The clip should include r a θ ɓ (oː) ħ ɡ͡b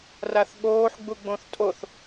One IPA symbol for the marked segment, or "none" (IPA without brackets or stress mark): oː